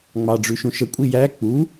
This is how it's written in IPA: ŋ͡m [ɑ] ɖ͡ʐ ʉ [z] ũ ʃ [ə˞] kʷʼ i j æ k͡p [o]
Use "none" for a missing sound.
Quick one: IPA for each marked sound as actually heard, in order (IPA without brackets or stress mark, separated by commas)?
ɑ, ʃ, ə, u